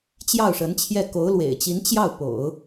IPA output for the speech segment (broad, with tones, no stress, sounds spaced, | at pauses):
t͡ɕ j ɑ˥˩ ʊ̯ ʂ ə˧˥ n t͡ɕʰ j ɛ˥˩ k o˧˥ ʊ̯ l w ḛ˨˩ ɪ̯ t͡ɕ i˧˥ n t͡ɕ j ɑ˥˩ ʊ̯ p o̰˨˩˦ ʊ̯